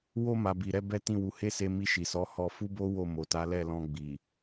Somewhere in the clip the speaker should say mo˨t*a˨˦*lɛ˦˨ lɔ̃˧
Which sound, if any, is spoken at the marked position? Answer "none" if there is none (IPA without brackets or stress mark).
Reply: a˨˦